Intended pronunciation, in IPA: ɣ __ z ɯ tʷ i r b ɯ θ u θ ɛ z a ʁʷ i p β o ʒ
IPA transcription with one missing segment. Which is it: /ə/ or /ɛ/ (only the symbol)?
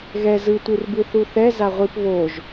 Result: ɛ